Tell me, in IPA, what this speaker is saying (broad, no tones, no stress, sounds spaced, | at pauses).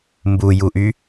m b u j u ʔ y